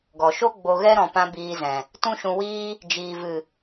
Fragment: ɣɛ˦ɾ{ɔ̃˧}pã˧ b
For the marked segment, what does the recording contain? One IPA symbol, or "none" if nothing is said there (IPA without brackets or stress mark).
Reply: ɔ̃˨